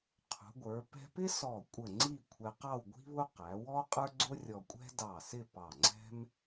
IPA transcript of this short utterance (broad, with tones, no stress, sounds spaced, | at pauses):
qʰ ṳ˩˧ ɡʷ ə˞˩˧ p ɛ̤˧ p ɪ˥ s ɔ˧˩ kʷʼ ə˧˩ ŋ͡ǀ i˥˧ kʷʰ ɛ˧ q ɑ˥˧ w ɡʷ i̤˥ β ʊ˥ q æ˩˧ w ɔ˥ qʼ ə˞˥ ɡ͡ǀ ʊ˥ rʲ ɔ˧ kʷʼ ɛ̤˥ d ɑ˧˩ s ɪ˥˧ p ɑ˧˩ ŋ͡ǀ ɛ̤˥ m